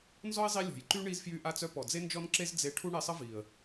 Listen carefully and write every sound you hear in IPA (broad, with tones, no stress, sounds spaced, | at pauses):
n z ɔ˦ ɪ̯ zˤ i˧ lʲ ɔ̤˨ j ǃ y˦ ɳ i˧ z f j y˧ ʔ a˧ t͡s œ˧ p ɔ˨ d͡z e˦ n d͡ʒ ɔ˦ n ǁ e˦ z d͡z e˧ ʈʰ u˦ ɳ e˧ sˤ ə˦ v i˨ ə̯